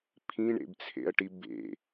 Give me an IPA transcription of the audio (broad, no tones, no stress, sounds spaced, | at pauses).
pʰ ĩ ɳ ḛ b t͡sʰ ḛ ɐ̯ ʈ i b ḛ